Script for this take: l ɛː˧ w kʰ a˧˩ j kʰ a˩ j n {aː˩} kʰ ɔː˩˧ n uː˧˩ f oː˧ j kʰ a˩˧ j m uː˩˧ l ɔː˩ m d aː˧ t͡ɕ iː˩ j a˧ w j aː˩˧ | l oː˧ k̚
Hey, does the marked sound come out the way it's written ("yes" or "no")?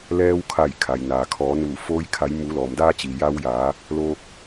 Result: yes